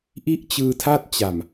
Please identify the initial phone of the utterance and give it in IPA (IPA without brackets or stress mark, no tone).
ʔ